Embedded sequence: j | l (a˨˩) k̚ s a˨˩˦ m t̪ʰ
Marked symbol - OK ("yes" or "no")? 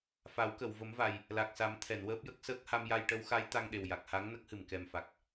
yes